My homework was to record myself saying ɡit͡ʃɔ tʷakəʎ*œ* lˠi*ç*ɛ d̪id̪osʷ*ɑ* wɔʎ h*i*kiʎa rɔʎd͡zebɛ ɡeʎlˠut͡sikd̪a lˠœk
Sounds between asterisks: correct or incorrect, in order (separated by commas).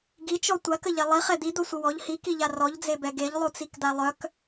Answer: incorrect, incorrect, incorrect, correct